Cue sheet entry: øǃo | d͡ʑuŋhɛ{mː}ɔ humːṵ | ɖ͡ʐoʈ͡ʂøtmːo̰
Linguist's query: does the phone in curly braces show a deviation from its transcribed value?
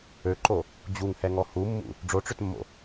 yes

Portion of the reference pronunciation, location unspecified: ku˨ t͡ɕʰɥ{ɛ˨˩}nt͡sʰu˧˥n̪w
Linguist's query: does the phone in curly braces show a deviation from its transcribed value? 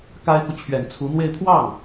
no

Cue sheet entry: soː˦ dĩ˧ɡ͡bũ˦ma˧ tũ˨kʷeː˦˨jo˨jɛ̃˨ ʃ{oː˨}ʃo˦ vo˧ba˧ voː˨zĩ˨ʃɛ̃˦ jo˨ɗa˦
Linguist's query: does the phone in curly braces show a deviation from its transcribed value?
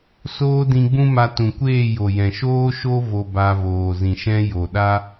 yes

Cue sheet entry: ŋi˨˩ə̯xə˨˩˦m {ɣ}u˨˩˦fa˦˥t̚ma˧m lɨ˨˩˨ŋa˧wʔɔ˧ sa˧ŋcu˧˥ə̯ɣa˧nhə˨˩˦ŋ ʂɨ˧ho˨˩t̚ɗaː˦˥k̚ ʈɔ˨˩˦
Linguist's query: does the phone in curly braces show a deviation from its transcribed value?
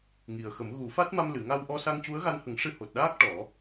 no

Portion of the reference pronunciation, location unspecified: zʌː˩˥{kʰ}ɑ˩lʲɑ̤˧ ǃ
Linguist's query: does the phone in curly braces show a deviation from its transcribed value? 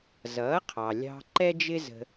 yes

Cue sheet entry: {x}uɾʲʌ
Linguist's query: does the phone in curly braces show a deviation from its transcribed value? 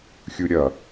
yes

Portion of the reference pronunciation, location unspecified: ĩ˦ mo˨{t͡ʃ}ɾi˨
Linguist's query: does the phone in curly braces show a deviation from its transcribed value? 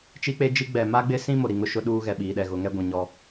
yes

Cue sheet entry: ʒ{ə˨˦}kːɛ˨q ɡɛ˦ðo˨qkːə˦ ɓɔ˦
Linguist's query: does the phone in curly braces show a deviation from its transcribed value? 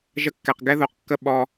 yes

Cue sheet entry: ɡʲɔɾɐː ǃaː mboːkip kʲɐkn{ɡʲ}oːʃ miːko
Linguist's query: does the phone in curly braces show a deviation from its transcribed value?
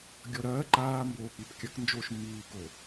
yes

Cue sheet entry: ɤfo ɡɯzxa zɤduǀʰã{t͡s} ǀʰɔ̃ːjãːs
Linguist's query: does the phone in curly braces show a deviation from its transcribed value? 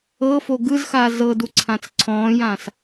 no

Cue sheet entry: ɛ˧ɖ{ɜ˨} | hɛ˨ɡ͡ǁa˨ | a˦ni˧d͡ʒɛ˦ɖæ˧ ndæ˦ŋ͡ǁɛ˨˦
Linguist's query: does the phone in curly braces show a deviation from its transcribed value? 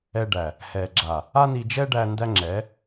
yes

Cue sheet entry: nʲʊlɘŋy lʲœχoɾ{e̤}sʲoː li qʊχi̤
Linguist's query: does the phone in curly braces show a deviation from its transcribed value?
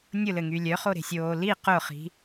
no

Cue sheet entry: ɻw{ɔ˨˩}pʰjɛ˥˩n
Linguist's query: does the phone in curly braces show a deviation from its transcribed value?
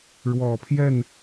no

